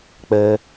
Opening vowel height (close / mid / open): mid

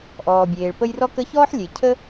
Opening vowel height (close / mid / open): mid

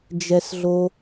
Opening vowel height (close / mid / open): mid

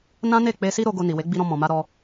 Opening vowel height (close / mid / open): open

